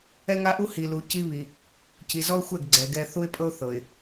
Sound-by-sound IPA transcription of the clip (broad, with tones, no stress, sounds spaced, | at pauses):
ɛ˦ ŋ a˦ ʔ u˦ h i˨ l u˨ c i˦ β i˨ | c i˨ z ɔ˦ ʊ̯ xʷ ɛ˦˨ ɡ ɡ͡ǀ ɛ˨ ɡ ɛ˦ θ u˦ ɪ̯ pʼ ɤ˦ ʊ̯ θ ɤ˨ ɪ̯